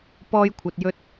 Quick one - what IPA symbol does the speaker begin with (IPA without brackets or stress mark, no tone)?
p